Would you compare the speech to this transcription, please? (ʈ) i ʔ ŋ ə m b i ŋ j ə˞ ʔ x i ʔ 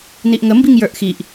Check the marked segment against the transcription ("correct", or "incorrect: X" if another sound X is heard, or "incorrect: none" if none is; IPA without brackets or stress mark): incorrect: n